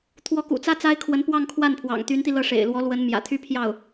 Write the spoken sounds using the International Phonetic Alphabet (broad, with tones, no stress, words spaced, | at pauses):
t̪ʰwɔ˧˥kṵ˨˩t͡sä˥ t͡sa˥ɪ̯kʰwə˧˥n pwɑ˥˧ŋkʰwa˥˩npʰwɑ̰˨˩ŋ t̪y˧˥nt̪i˧lɤ˥˩ ʂḛ˨˩ɪ̯lwɔ˧˥lwə˧˥n mjä̰˨˩t̪ʰy˥pʰjɑ˥˩ʊ̯